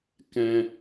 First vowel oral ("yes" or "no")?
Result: no